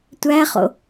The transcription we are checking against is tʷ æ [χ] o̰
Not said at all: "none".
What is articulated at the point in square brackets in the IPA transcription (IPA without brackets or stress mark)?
χ